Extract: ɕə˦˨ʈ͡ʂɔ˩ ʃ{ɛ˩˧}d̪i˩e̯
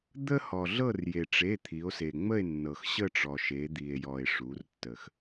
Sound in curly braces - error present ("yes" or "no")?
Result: yes